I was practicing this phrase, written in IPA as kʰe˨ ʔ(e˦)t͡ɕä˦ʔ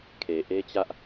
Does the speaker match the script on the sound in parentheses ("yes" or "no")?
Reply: yes